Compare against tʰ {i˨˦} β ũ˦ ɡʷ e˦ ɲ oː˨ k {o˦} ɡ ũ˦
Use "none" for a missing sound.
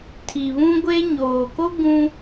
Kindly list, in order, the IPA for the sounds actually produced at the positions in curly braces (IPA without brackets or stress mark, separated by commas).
i˨, o˦